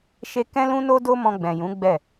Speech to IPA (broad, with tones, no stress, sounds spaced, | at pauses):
ʃ e˧ k ɛ̃˦ l ũ˦ n o˦ d o˦ m ɔ̃˧ ɡ͡b ɛ̃˨ j ũ˨˦ ɡ͡b ɛ˦˨